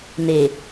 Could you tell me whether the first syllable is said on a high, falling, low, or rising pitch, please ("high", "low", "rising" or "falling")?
low